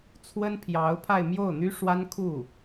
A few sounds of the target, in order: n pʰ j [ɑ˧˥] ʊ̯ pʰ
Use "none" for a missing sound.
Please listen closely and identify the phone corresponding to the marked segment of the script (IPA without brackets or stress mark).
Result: ɑ˧˥